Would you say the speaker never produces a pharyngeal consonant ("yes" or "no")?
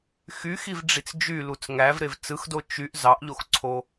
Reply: yes